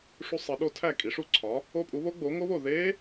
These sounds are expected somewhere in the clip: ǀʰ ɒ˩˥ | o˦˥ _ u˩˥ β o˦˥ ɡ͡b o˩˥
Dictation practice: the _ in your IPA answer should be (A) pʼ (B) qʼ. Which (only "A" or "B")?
A